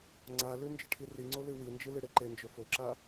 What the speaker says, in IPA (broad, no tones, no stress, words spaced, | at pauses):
ŋ͡ǀalʉ nd͡ʒɨʈʰiriŋ͡ǀo lɨwind͡ʒɨ lɨɽeǃend͡ʒɵ foǁa